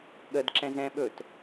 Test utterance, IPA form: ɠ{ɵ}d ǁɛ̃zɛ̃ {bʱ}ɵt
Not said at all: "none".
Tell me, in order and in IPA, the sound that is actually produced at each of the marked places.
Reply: ə, ɓ

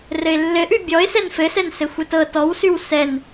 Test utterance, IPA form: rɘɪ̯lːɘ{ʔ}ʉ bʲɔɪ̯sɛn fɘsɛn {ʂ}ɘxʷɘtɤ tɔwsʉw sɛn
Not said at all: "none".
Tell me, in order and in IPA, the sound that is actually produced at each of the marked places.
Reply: ʔ, s

